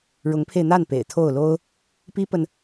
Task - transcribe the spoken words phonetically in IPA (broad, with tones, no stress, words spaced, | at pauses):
ɻʊ˧˥ŋpʰe˧ɪ̯n̪a˥˩n pḛ˨˩ɪ̯t̪ʰo˥˩ʊ̯lo˥ʊ̯ | pi˥pə˨n